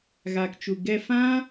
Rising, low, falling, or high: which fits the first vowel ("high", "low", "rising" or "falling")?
low